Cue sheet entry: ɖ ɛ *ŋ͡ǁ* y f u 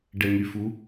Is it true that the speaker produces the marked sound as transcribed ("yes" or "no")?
no